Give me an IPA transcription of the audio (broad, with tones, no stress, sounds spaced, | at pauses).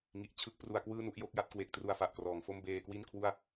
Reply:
ŋ i˨˩ ʔ t͡ɕʰ ɯ˥˩ k̚ p r u˧ a̯ k w ɯː˥˩ n u˥˩ ʔ j o˦˥ k̚ j a˥˩ t̚ k w e˨˩ k̚ t r u˧ a̯ f a˨˩ ʔ k r ɔː˩˦ ŋ f o˥˩ m b eː˧ k w i˥˩ n kʰ w u˥˩ a̯